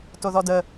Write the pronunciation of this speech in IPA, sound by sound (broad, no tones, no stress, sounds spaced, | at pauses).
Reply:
t o ð ɔ d ə